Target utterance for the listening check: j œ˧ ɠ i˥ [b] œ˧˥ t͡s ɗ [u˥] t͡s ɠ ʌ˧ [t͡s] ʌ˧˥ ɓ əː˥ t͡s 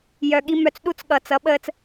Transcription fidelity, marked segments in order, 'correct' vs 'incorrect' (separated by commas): incorrect, correct, correct